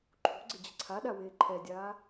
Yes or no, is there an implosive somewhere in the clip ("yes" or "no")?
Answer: yes